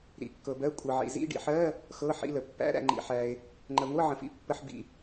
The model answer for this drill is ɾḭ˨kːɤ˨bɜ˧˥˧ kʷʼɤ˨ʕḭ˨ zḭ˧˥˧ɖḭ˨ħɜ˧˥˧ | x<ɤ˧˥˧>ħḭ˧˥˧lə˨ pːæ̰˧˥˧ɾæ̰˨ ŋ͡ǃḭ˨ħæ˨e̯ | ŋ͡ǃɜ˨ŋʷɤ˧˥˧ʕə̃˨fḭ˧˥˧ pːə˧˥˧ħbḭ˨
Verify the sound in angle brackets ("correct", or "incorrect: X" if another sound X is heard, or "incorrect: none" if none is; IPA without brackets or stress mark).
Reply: correct